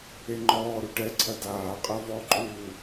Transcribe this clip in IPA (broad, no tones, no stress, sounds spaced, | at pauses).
e ŋ͡ǃ ɔː ɾ u ʈ ɛ ǀʰ ɐ d aː qʼ ɐ v ɔ ǃʼ uː